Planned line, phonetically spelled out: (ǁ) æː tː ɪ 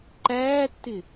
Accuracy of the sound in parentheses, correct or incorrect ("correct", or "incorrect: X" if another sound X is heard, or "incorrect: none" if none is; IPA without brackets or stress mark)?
incorrect: ǃ